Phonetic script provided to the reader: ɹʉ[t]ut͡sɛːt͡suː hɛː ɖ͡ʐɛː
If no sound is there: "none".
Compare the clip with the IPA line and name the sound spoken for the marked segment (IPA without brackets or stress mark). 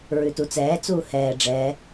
t